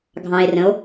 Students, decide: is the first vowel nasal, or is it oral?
nasal